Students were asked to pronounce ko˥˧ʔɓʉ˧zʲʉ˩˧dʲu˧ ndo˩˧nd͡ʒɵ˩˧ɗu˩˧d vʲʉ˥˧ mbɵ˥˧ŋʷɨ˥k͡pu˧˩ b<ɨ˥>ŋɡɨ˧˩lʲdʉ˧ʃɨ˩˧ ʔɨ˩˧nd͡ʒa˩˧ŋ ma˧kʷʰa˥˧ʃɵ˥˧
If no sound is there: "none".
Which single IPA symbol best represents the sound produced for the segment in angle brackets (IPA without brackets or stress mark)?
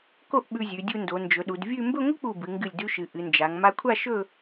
ɨ˩˧